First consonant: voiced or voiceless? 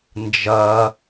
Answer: voiced